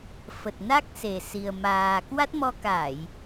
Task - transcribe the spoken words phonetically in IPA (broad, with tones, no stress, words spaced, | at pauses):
fə˨˩t̚na˦˥k̚se˨˩si˨˩ə̯ maː˨˩ kwa˦˥t̚mɔ˧ ka˧˩˨j